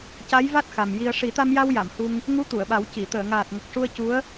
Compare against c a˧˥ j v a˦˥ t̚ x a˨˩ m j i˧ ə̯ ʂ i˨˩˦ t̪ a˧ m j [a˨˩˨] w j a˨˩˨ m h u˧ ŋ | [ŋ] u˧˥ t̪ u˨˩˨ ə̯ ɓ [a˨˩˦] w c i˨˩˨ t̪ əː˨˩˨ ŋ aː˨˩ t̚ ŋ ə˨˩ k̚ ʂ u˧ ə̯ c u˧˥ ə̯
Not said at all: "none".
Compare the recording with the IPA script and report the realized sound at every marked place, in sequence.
a˧, ŋ, a˨˩˦

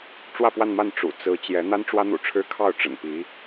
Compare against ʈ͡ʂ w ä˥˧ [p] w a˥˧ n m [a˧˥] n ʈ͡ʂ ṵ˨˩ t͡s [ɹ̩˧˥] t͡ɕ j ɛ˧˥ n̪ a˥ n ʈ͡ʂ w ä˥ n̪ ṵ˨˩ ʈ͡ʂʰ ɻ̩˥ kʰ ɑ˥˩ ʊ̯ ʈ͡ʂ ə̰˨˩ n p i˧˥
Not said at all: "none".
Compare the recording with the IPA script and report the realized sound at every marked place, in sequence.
p, a˥˩, ɹ̩˧˥

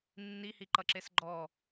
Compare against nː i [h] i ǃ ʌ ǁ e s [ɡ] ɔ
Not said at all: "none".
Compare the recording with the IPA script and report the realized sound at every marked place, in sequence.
h, ɡ͡ǃ

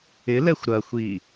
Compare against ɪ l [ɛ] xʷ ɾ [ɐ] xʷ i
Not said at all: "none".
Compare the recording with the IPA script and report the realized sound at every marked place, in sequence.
ɛ, ɐ

